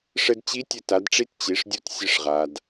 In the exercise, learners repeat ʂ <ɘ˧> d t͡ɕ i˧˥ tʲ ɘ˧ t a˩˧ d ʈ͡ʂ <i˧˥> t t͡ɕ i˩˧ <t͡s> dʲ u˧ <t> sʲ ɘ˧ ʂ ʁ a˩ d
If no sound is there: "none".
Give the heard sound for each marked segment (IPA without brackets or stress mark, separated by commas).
ɘ˧, i˧˥, ʂ, t